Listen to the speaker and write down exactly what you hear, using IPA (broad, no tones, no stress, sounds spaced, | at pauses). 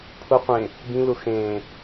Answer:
pʰ ʊ qʷ ẽ | b ĩ l ʊ x ẽː